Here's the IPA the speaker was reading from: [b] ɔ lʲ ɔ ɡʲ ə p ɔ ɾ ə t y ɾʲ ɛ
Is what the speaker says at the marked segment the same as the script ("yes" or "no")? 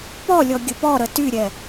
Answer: no